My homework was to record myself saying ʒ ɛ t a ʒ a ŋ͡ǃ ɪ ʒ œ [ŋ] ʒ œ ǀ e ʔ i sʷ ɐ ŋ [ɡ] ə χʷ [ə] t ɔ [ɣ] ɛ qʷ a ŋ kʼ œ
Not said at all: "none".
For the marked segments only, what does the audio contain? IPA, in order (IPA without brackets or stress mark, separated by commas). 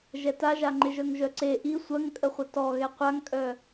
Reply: ŋ, kʼ, ə, ɣ